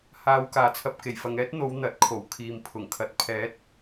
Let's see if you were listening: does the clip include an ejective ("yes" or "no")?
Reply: no